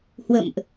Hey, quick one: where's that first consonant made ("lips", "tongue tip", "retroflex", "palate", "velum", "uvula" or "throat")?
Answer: throat